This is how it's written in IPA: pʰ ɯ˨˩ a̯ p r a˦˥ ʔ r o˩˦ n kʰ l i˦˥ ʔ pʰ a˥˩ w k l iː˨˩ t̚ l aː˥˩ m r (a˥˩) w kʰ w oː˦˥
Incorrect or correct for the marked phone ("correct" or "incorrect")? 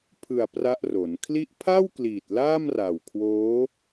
incorrect